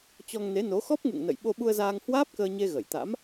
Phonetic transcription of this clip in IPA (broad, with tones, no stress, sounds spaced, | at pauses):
t͡ɕ ɔ˧ ŋ n e˨˦ n o˨˦ x ɔ˦˥ p̚ ŋ ṵ˧˨ ŋ n ə̰˧˨ j ɓ o˧ ɓ u˧ ə̯ z aː˧ ŋ h w aː˦˥ p̚ k əː˧ ɲ e˧ ɣ ə˧˩ j t̪ a̰˧˥ m